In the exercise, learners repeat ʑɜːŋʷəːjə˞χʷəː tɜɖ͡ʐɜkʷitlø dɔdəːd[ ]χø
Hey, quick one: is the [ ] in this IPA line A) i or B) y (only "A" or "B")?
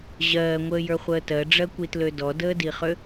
A